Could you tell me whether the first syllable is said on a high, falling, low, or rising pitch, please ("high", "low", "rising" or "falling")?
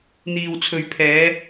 low